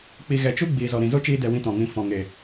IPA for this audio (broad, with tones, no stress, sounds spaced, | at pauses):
k͡p i˧ ɣ ɛ˨ t͡ʃ u˦ ɡ͡b iː˨ z ɔ˨ ɾ ĩ˨ z o˦ t͡ʃ iː˧ d ɛ˨ w ĩ˦ t ɔ̃˨ ŋ ĩ˧ f ɔ̃˨ ŋ e˨